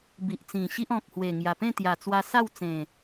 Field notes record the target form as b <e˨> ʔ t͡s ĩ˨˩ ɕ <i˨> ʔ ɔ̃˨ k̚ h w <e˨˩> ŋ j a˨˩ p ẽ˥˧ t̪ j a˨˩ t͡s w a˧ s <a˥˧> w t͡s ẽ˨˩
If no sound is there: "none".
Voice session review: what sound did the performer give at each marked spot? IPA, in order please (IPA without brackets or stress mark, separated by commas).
i˨, i˦, e˨˩, a˥˧